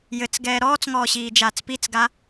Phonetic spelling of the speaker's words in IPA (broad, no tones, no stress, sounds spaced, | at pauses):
j ɘ t͡s ɡ ɛː ɾ ɔː t͡s ŋ ɔː ɕ iː d͡ʒ aː t͡s p i t͡s ɡ a